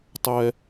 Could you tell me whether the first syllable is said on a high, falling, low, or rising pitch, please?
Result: high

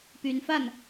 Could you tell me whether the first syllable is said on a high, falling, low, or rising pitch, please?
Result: rising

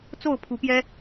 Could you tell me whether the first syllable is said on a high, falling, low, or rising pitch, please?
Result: falling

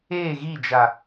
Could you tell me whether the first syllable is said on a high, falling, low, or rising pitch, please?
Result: falling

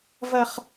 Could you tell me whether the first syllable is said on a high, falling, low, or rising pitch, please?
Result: high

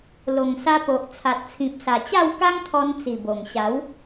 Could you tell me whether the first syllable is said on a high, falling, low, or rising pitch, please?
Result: low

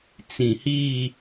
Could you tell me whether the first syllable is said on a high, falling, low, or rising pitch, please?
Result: low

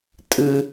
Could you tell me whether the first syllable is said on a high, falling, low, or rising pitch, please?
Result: low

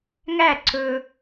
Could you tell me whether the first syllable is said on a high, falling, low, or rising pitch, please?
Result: falling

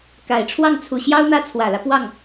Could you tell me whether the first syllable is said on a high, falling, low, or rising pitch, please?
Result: low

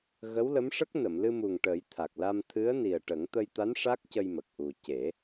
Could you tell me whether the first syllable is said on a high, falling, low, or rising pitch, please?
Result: rising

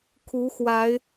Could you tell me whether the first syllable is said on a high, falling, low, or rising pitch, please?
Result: rising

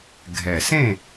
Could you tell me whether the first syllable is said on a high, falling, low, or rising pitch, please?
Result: low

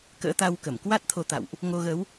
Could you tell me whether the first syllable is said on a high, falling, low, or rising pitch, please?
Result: rising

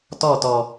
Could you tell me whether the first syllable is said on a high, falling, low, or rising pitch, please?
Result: falling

